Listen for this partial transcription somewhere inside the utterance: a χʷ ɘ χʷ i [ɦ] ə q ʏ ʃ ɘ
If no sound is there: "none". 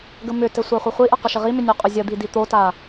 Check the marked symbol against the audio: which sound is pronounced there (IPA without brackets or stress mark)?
ʔ